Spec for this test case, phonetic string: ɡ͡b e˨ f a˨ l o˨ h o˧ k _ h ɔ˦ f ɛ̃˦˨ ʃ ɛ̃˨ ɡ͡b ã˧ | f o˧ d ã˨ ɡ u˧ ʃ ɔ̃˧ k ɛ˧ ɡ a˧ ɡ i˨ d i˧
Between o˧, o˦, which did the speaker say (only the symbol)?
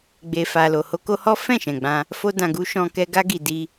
o˧